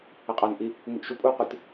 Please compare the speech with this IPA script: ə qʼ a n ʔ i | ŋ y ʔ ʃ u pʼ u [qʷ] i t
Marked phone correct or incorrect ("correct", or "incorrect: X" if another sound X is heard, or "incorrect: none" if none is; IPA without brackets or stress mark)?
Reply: correct